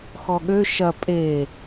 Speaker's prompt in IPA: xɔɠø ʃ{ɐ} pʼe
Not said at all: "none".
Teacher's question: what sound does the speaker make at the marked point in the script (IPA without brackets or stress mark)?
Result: ɐ